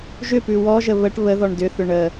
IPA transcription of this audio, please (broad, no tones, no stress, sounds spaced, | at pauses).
ʒ ʏ p ʉ w ɔ ʒ ə β ə ʈ β ə ð ɔ ɳ d ʏ θ ʏ ɳ ə